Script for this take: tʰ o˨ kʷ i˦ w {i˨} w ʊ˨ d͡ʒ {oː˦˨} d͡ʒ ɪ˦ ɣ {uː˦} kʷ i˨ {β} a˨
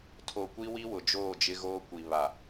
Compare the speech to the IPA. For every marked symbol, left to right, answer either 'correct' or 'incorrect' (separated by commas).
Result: incorrect, correct, incorrect, correct